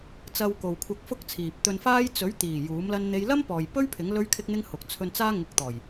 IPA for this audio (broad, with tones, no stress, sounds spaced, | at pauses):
t͡s ɐ˧ w k o˨ w kʷʰ ɐ˧ k̚ f ʊ˥ k̚ t͡sʰ iː˨ p̚ t̪ ɵ˧ n f aː˥ j t͡s ɵ˨˥ ɥ t̪ iː˨˩ j uː˨˥ m l ɐ˥ n n̪ e˥ j l ɐ˥ m p ɔː˨ j p ɵ˥ ɥ pʰ ɪ˨˥ ŋ l ɵ˥ ɥ kʰ ɪ˥ k̚ n̪ ɪ˥ ŋ h ʊ˨˥ k̚ t͡sʰ ɵ˧ n t͡s aː˥ ŋ ɪ˧ k̚ t̪ ɔː˨˩ j